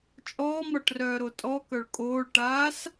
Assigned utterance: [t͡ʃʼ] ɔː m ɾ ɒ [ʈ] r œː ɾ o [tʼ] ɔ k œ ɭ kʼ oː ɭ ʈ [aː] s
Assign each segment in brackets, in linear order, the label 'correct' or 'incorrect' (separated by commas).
correct, correct, correct, correct